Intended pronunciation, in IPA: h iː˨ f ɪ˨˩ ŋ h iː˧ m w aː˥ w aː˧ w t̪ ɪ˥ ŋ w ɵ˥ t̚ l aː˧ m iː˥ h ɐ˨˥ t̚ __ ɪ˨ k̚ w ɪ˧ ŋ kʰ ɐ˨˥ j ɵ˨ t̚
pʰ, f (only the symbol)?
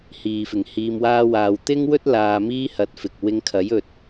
f